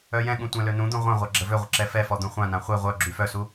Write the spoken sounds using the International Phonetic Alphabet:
œ j ɛ̃ ɠ ũ tʷ ɛ̃ l ø n ũ d̪ ũ ʁʷ ã ʁʷ a ɡ͡ǁ ə v ø ʁʷ ə ǁ ɛ f ɛ f ɔ d̪ ũ χʷ ã n ã χʷ e ʁʷ œ ɡ͡ǁ y f œ s u

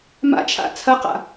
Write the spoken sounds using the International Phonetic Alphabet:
m a̰ t͡ʃʰ a̰ t͡sʰ ɐ q a̰

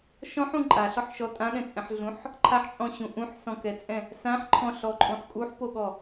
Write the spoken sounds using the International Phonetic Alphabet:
ʃ ɔ̃ ħ ũ ǃʼ a ɬ ɔ ħ ʃ ɔ tʼ ã ɠ ɛ̃ t͡sʼ ɛ̃ ħ ɮ ũ ħ | ǃʰ a ħ t͡ʃʼ ɔ̃ ɕ ũ ʔ ũ ħ s ɔ̃ k ɛ t͡sʼ ɛ̃ | s ã ħ ǃʰ ɔ̃ ɬ ɔ ǃʼ ũ ħ kʼ u ħ p o ɠ ɔ

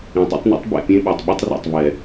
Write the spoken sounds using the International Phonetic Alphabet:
ĩ˨ tˤ o̰˦ tˤ n ɛ̰˦ tˤ b ɛ̰˨ pʲ ẽ˦ ɓ o˨ tˤ ɓ y˦ tˤ r a̰˨ tˤ v ɛ˨

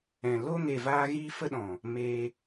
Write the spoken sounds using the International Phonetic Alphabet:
ɛ̃˨ l o˦ ŋ e˨ v aː˧ ɣ iː˦ f ə˦ ɗ ɔ̃˨ | m e˧

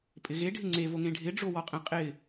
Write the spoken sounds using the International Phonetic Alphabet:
pʼ ɪ ɣ e ɖʱ ɪ ŋ͡ǀ e v o ŋ ẽ ɖʱ ɪ ɖ͡ʐ o w ɔ qʼ ẽ qʼ ɪ

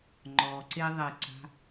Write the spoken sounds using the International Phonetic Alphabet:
ŋ͡ǃ ɔ ǀ e ðˤ e ǀ a̤

